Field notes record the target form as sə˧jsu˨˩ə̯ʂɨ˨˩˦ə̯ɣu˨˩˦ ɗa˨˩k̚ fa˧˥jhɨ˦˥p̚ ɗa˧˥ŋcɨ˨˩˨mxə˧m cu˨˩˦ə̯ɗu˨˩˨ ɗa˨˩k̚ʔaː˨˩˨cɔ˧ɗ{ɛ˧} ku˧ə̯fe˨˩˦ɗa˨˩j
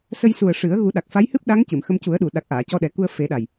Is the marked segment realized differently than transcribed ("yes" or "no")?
yes